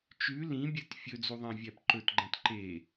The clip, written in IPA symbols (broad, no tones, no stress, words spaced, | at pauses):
t͡ʃʉ lĩbʲɛt fʲɵd͡zuðˤæ̃vʲæp ǃɵtɡ͡ǃæ̃t ǃe